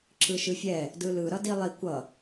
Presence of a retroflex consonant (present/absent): absent